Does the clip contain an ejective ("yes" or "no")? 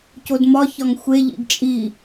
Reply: yes